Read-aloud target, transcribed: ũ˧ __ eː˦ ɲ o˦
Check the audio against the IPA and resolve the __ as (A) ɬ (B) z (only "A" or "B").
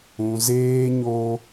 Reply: B